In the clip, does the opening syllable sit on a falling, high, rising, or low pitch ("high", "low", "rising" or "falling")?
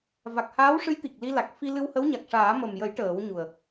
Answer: low